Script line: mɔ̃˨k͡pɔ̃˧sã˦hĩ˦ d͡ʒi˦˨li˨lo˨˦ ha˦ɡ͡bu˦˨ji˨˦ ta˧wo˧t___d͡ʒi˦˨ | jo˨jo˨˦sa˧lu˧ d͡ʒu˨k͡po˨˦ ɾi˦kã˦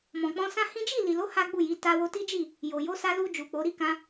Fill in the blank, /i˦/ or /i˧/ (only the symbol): i˦